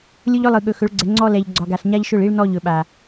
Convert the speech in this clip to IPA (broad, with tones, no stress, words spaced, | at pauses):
lʲʊ˦ʎɵ˦lˠɯ˨ ɠɵ˨xɵ˨˦ɭɡ͡ǀɛ˨ ŋ͡ǀɔ˦ lɛ˨ʎ ɡ͡ǀɒ˨ɡa˨ɬ ɲa˦ʎʃʊ˦˨ɭ i˦ɭnɔ˦˨ʎ ɵ˨ɓa˨